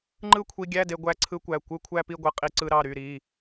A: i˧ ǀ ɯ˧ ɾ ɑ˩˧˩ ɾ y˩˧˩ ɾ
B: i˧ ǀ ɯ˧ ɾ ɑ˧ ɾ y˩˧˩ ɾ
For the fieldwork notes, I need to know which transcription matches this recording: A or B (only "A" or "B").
A